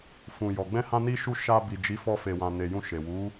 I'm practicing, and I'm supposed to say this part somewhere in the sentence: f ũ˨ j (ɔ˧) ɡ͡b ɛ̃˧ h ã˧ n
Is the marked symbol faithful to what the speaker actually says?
no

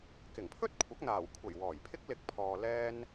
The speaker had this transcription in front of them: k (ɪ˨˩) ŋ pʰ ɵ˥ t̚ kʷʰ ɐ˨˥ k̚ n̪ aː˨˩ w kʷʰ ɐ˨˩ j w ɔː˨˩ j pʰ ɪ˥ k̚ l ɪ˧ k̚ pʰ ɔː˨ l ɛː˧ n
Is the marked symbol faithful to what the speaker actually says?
yes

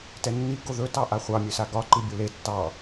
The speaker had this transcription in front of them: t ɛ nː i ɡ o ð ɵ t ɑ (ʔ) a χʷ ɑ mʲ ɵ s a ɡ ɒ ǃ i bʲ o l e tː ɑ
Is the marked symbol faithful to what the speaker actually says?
yes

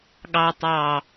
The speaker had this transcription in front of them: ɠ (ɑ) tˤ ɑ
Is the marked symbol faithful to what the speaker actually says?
yes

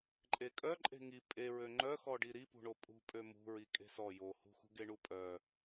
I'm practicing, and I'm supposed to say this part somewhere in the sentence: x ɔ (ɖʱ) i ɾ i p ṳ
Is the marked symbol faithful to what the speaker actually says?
no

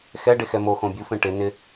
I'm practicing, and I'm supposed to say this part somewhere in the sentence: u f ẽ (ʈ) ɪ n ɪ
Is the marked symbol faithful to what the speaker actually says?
yes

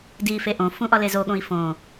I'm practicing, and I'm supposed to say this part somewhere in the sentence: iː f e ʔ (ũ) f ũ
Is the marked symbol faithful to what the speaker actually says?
no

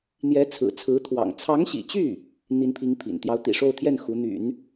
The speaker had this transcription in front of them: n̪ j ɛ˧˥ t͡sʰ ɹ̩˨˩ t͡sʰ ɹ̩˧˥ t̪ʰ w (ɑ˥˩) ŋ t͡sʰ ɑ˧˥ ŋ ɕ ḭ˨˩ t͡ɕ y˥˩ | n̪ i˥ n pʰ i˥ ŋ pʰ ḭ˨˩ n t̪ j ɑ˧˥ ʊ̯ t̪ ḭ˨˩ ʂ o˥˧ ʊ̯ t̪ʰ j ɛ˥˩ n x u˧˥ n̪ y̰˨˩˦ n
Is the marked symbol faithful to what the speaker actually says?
no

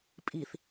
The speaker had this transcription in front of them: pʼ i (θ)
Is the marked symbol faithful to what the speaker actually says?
yes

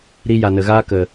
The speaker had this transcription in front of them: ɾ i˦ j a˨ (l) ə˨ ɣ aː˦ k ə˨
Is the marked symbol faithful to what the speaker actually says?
no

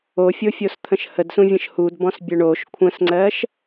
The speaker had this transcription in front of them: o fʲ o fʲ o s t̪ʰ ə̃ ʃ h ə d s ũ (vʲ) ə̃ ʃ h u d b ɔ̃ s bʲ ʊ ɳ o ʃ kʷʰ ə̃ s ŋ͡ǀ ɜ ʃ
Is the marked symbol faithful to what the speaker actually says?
yes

